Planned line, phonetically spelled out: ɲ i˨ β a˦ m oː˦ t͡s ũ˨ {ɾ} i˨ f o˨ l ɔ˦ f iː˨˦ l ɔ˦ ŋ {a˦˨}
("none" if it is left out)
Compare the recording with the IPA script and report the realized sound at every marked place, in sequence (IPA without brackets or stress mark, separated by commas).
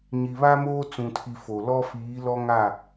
tʰ, a˦˨